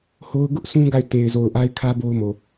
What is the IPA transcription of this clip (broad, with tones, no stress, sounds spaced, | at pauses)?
h o˦ ʊ̯ ɡ ʊ˦ ʔ s ũ˦ ɡ a˦˨ ɪ̯ t e˨ ɪ̯ z o˨ ʊ̯ ʔ a˦ ɪ̯ kʰ ä˦ b o˦ ʊ̯ m o˨